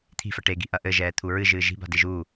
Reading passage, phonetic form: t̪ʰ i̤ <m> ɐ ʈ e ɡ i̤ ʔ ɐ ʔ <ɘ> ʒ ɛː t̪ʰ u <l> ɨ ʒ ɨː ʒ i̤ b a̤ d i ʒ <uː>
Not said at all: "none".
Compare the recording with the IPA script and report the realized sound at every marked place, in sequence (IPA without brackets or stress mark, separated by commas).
f, ɘ, ɹ, uː